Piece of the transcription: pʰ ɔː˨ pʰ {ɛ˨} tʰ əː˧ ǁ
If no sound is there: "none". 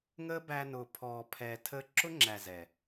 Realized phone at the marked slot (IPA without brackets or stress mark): ɛ˨